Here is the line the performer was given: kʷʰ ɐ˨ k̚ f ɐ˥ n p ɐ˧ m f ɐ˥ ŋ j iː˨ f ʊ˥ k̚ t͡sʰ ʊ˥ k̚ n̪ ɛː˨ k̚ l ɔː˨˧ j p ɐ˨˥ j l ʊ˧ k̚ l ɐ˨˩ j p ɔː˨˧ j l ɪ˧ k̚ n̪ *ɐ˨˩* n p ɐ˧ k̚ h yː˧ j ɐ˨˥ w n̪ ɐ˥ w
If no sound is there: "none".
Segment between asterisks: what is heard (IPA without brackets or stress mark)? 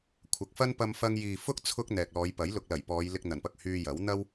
ɐ˨˩